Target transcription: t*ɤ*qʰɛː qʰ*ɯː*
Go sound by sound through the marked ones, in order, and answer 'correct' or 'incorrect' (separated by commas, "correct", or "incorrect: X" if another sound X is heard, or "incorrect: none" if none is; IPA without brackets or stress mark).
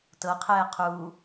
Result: correct, incorrect: uː